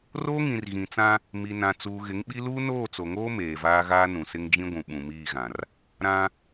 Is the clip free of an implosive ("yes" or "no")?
no